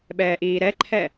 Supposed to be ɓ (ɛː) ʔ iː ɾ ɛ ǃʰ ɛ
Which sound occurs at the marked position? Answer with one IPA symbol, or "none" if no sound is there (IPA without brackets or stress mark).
ɛː